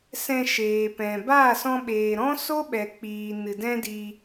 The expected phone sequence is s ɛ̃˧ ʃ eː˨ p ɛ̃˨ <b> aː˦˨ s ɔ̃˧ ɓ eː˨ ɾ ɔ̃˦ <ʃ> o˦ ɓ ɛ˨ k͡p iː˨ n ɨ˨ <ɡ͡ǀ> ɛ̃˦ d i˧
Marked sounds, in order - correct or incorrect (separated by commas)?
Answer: correct, incorrect, incorrect